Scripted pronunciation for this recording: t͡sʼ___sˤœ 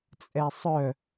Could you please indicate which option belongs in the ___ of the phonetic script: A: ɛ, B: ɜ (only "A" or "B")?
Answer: A